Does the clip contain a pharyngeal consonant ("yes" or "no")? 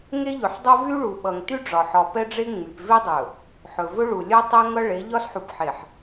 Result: yes